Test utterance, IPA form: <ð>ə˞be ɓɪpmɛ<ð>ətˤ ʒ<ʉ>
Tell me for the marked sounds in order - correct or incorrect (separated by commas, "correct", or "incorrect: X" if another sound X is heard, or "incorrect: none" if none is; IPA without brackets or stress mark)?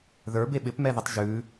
correct, correct, correct